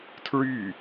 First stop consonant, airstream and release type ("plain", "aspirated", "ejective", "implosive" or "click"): aspirated